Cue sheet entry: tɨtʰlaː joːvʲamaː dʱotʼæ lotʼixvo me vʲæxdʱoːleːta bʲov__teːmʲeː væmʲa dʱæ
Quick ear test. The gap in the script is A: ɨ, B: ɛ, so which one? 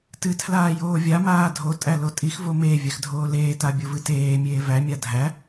A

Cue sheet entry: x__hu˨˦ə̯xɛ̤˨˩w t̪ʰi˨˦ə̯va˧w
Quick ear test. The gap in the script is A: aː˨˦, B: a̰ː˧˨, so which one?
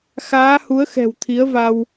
A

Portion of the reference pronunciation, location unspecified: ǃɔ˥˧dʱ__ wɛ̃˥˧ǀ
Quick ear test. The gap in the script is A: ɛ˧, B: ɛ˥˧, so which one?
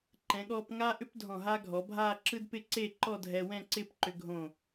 A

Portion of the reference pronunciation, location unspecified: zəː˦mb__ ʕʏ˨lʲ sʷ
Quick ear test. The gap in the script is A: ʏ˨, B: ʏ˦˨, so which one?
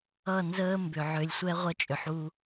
A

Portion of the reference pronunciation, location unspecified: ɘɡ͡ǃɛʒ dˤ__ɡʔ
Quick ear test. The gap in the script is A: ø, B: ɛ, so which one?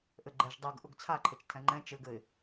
B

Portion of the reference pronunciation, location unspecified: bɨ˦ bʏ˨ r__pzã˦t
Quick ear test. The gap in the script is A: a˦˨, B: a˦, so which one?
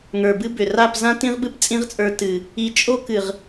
A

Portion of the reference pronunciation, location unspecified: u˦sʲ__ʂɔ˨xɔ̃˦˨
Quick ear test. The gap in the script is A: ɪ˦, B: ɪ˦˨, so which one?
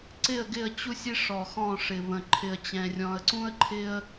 A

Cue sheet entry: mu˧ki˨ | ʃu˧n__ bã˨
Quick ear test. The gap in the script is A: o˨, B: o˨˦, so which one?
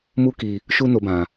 A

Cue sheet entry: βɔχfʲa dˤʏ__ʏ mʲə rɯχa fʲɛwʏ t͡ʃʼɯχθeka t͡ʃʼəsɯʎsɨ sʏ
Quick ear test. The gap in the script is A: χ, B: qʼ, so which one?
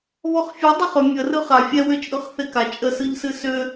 A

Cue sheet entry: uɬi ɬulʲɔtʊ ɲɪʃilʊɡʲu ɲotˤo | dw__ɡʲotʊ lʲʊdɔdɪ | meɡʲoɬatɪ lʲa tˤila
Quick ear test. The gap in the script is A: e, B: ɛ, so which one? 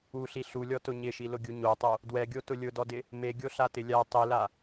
B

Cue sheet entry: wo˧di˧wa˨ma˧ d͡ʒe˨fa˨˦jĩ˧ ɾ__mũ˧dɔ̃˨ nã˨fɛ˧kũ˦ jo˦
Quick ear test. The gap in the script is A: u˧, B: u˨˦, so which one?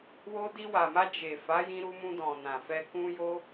A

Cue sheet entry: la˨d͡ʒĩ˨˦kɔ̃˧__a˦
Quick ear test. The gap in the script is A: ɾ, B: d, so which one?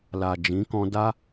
B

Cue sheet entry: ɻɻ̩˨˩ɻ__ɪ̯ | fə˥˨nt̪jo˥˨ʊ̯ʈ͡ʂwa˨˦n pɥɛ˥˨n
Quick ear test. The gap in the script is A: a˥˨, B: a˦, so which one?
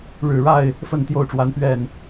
A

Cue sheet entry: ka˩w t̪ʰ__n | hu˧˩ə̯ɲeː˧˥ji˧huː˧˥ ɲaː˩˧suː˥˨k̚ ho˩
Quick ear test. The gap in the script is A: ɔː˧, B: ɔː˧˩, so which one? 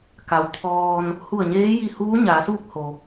A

